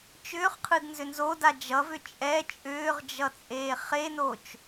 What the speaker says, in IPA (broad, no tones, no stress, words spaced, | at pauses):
t͡ʃʏːχqʰɯdnzʏ nzoda d͡ʒʌvʏ t͡ʃʼɛ t͡ʃʼʏːʁd͡ʒʌt͡sʼeː χenot͡ʃ